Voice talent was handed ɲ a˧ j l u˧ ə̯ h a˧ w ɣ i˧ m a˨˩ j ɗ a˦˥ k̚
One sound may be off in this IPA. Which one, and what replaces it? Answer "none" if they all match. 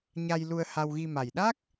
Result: none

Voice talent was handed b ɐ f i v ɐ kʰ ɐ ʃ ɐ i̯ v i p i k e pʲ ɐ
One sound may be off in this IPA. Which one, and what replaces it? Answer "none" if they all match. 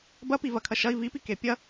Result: f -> p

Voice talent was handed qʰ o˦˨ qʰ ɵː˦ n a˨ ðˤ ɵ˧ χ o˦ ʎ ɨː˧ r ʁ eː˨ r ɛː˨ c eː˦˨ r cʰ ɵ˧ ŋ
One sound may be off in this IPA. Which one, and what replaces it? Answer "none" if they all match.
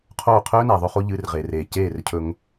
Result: ɛː˨ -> eː˨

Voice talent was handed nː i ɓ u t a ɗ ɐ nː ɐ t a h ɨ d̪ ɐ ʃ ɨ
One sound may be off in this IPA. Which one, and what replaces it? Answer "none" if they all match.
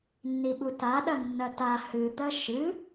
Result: none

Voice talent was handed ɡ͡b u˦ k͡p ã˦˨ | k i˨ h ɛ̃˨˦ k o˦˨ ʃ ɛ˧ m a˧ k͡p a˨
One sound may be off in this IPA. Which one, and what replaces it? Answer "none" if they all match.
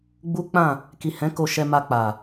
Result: o˦˨ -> o˧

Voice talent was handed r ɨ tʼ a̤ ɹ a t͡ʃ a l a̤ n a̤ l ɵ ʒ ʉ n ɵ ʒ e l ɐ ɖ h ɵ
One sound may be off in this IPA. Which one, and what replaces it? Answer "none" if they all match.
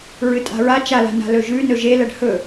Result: r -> ɹ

